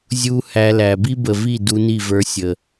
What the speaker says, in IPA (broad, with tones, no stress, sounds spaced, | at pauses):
zʲ u˧ h æ˧ l æ˨ b i˦ b ə˨ v i˦˨ d u˧ n i˦˨ v ə˞˧ sʲ ə˨